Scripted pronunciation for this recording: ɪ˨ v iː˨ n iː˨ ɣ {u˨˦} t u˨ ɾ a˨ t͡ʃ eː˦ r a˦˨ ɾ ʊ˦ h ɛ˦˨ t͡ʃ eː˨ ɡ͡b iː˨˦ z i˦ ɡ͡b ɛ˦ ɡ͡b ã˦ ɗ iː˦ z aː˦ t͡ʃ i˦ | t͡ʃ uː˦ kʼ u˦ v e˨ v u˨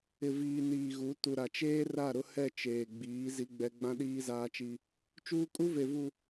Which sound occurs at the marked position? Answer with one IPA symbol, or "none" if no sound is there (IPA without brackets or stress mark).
u˨˦